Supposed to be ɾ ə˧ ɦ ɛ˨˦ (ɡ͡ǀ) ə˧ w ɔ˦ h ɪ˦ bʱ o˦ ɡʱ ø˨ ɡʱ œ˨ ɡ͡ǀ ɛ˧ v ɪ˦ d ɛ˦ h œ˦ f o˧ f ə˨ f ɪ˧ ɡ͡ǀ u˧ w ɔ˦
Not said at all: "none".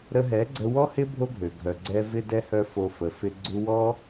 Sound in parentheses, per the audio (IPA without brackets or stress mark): ɡ͡ǀ